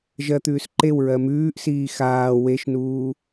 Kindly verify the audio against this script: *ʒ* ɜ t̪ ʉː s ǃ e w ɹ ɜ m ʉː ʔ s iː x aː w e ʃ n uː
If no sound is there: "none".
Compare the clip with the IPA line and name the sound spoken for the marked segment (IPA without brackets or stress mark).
ʒ